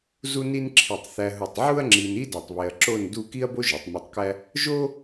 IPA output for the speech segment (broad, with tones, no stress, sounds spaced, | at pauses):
z u˥ n i˥ n ǁʰ i˧˩ tˤ θ æ˧ ɦ u˧˩ tˤ ʕ u˥ ɐ̯ ŋ͡ǁ i˧ n i˥ d ɒ˧ tˤ β e˧ ɐ̯ ǁ o˥˧ n d u˥˧ k i˥ ɐ̯ b o˥ ʒ o˩˧ tˤ m i˧ tˤ k æ˥ | ʒ o˥